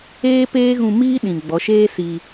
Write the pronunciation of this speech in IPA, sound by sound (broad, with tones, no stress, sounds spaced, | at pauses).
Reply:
eː˦ p eː˦ ɣ ũ˧ m iː˦ ɗ ĩ˨ ɡ͡b ɔ˨˦ ʃ eː˦ s i˧